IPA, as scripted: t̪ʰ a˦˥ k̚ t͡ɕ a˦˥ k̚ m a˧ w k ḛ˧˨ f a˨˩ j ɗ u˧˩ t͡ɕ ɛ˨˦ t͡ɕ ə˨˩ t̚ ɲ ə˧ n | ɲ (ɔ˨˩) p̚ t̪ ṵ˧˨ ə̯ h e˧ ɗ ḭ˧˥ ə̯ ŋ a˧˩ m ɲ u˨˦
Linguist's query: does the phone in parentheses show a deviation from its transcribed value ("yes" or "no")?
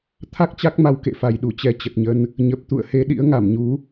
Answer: yes